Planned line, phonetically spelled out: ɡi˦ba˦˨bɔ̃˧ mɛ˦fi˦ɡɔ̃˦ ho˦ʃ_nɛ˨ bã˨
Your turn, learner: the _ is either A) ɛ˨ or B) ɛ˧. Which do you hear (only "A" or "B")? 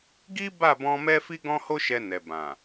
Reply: B